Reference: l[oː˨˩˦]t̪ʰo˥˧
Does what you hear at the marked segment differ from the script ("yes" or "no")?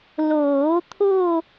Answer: no